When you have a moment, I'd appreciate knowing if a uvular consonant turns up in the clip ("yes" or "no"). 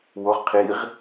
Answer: yes